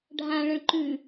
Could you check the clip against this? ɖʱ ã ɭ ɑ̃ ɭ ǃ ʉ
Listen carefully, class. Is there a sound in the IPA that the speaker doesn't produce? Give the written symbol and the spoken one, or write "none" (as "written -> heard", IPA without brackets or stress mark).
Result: ɑ̃ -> ə̃